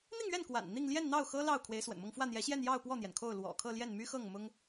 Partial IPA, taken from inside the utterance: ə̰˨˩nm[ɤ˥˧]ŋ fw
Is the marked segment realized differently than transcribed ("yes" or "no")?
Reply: no